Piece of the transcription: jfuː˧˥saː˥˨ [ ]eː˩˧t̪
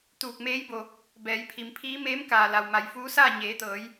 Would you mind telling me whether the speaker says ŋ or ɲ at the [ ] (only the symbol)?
ɲ